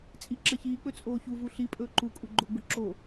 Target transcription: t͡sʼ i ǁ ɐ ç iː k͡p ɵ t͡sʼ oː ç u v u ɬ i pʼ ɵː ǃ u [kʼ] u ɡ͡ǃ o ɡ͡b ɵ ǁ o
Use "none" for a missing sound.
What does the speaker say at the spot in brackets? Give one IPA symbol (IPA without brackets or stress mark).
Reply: kʼ